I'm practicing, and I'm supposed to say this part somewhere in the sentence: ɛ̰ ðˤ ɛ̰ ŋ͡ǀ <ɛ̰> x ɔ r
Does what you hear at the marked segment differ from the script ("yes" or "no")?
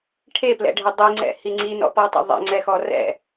yes